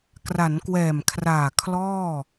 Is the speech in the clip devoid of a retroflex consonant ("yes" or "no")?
yes